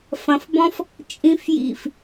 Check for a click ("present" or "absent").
absent